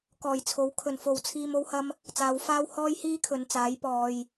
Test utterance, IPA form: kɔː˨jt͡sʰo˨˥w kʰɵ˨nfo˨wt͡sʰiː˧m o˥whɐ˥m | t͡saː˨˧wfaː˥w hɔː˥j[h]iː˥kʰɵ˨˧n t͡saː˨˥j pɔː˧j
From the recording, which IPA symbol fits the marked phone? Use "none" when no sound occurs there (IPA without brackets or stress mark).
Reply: h